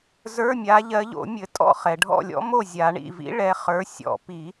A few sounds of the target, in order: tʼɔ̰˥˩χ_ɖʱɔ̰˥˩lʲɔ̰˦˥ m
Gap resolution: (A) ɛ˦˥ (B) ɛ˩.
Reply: B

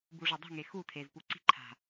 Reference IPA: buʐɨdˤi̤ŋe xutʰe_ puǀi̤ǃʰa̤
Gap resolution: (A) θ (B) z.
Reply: B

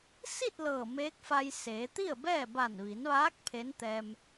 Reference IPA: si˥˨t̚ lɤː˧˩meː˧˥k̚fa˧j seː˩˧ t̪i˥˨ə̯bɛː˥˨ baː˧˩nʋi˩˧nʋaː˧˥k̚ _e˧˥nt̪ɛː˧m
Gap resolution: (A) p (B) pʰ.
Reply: B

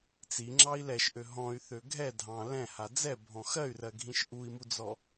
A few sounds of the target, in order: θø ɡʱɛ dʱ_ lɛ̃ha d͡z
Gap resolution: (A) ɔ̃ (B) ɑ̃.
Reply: B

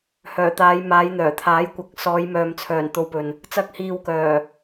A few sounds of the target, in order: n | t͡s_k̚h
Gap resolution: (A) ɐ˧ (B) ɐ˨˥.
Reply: A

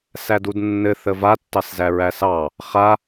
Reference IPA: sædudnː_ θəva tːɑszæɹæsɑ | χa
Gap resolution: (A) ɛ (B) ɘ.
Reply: B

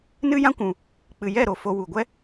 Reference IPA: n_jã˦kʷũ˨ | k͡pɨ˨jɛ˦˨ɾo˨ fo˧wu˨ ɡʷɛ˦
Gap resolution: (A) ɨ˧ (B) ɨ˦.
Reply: B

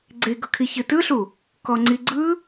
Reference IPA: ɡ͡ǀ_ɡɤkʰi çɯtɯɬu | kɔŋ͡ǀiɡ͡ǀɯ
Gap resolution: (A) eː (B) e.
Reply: B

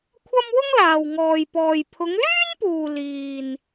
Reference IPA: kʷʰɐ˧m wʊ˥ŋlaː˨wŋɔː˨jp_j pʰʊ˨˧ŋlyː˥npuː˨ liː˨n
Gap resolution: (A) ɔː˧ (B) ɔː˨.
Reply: B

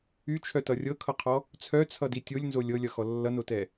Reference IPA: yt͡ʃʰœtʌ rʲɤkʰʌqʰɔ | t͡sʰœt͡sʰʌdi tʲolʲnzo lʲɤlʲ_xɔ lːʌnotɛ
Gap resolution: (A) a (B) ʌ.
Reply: B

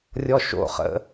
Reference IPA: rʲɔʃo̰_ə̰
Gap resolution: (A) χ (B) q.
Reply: A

